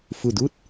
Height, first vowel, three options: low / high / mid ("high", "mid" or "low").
high